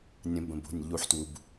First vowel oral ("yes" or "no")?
no